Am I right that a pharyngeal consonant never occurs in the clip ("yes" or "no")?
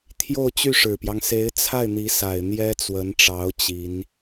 yes